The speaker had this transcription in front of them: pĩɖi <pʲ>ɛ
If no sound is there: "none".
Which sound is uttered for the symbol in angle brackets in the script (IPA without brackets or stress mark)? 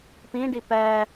p